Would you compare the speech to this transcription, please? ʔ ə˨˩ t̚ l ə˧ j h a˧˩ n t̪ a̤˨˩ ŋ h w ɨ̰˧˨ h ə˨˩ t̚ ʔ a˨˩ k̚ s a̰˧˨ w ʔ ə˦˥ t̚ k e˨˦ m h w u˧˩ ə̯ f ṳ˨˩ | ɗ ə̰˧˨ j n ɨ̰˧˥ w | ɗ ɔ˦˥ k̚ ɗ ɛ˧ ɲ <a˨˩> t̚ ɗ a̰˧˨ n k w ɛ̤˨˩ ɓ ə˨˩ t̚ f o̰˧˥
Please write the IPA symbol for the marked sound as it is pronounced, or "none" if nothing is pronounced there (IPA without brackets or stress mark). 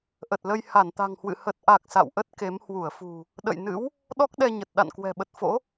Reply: ə˨˩